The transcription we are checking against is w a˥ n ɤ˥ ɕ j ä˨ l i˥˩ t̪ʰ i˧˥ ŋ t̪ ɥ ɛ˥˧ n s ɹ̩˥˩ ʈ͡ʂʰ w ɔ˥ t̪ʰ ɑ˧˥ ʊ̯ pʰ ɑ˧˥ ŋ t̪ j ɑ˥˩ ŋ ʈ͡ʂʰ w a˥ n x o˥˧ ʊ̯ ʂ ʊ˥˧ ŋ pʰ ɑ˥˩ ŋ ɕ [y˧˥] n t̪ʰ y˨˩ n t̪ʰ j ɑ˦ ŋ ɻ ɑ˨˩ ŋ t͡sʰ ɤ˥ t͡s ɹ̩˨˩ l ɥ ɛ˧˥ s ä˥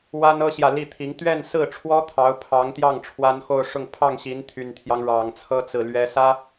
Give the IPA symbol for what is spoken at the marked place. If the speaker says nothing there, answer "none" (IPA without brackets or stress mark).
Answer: i˧˥